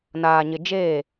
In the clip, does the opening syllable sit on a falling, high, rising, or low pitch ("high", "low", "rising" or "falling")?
low